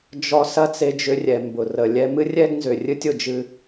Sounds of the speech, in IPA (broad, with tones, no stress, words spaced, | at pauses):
d͡ʒɔ˧ sɐ˥t͡se˧d͡ʒʏ˧ rʲɛ˩mbʊ˩ rə˩ lʲɛ˧ mɨ˥rʲɛ˥ɡnzʏ˩ rʲɨ˥tʲʊ˩d͡ʒɨ˧